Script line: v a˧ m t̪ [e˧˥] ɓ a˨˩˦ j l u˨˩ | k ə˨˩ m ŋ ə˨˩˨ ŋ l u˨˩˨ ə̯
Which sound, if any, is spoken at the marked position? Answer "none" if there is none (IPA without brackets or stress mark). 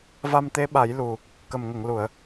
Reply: e˧˥